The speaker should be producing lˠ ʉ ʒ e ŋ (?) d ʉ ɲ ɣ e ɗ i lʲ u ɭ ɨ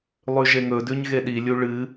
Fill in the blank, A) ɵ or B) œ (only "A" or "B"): A